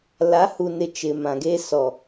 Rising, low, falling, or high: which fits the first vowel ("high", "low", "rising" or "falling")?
rising